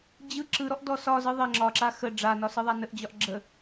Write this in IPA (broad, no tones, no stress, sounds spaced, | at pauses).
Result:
d͡ʑ ɯ ǁ ɯ ɾ ɔ ʔ d ɔ s ɒ z ɯ ðˤ ə ŋ͡ǁ ɒ ǁ a x ə ɖ͡ʐ a n ɒ s ɯ ðˤ a n ə ʔ d͡ʑ ɒ ʔ ɡ͡ǁ ə